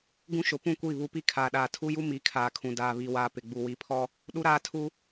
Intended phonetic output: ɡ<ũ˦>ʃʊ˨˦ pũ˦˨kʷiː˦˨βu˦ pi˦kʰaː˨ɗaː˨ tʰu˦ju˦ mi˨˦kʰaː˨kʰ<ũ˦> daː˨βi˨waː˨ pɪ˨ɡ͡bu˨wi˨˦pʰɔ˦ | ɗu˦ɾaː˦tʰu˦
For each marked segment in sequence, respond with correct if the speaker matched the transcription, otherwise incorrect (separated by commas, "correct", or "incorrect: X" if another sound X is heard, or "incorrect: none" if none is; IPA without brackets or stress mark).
correct, incorrect: ũ˨